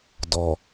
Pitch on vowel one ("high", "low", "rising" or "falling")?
low